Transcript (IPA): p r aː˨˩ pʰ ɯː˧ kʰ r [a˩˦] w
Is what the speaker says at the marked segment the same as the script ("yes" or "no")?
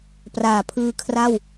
no